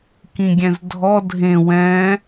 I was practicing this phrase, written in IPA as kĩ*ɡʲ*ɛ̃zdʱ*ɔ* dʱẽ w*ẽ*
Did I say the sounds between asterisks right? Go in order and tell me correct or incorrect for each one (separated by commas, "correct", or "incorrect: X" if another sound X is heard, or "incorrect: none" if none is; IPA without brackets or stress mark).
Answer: correct, correct, incorrect: ɛ̃